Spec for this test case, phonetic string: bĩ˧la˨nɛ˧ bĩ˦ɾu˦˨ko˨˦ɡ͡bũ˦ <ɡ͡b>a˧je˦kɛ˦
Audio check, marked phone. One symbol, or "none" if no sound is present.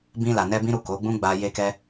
ɡ͡b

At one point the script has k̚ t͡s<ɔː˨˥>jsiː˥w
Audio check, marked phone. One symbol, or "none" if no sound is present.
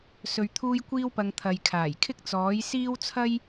ɔː˨˥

